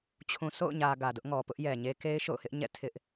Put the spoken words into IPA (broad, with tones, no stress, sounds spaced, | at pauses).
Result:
t͡ɕʰ ũ˨ sʰ o̰˦˨ ʊ̯ ɲ ä˨ ɡ ä˨ d ʊ˦ ʔ ŋ ɔ˨ p ʊ˦ ʔ j ɛ˨ ɲ e˦ k e˦ ɪ̯ ʃ o̰˦˨ ʊ̯ h ɪ˦ ʔ ɲ ɛ̰˦˨ tʰ ɪ˦ ʔ